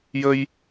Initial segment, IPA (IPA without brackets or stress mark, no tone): j